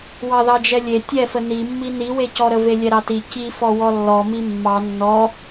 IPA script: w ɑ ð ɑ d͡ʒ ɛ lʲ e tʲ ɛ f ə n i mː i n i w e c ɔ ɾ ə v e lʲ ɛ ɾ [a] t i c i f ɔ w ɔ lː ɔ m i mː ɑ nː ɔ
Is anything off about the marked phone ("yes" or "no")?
yes